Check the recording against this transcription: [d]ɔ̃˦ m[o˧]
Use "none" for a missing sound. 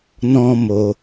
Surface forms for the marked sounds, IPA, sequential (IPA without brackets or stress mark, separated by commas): n, o˧